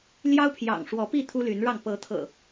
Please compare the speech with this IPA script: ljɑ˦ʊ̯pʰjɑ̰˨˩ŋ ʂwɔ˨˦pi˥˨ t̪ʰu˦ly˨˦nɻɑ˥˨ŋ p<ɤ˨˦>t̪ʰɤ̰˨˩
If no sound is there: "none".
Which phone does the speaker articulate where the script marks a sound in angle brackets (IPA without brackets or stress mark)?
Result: ɤ˨˦